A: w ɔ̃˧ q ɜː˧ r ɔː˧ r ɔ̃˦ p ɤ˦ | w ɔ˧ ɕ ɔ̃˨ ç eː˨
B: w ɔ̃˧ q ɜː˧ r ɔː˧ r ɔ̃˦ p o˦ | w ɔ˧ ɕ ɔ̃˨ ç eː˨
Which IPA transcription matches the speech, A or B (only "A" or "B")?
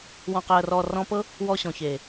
A